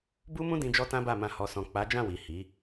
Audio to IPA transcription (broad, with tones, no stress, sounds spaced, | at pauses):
b u˦ m ũ˦ d ĩ˧ d͡ʒ ɔ˦ t ã˦ b a˦˨ m ã˧ h ɔ˨ s ɔ̃˨ k͡p a˨˦ d͡ʒ ã˦˨ w i˨ h i˨˦